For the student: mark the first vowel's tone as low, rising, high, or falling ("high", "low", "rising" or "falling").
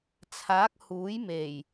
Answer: rising